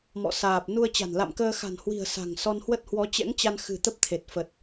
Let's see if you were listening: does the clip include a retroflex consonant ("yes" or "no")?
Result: no